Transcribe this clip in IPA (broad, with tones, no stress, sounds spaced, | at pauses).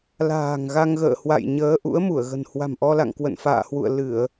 l a̤ː˨˩ ŋ ɣ a˧ ŋ ɣ ə̰ː˧˨ h w a̰˧˨ j ɲ əː˨˦ ʔ ṵ˧˥ ə̯ m u˧˩ ə̯ ɣ ə̤˨˩ n h w a̤˨˩ m ʔ ɔ˧ l a̰˧˨ ŋ k w ə̰˧˨ n f a̰ː˧˨ h w ṵ˧˨ ə̯ l ɨ˧˩˨ ə̯